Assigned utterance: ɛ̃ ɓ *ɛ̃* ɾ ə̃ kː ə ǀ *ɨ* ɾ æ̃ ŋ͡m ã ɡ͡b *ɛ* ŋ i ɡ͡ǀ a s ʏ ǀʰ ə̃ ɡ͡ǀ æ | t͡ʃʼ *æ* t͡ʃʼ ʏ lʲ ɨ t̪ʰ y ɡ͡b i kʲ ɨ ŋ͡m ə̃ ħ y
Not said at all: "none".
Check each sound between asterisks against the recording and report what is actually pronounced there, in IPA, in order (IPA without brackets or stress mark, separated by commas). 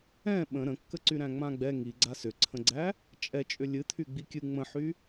ə̃, y, ɛ, ɛ